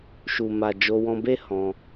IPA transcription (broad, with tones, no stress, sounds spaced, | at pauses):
ʃ u˨ m a˨ d͡ʒ o˧ w ɔ̃˧ b e˦ h ɔ̃˧